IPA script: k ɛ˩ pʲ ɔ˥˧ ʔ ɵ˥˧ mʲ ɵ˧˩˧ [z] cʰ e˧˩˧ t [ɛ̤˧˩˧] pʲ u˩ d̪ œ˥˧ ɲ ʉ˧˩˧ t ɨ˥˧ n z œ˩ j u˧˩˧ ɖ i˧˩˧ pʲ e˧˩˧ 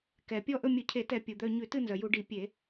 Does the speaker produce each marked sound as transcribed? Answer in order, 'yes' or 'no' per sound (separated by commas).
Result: no, no